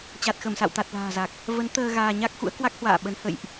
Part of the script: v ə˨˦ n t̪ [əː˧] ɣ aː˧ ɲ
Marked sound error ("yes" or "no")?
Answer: no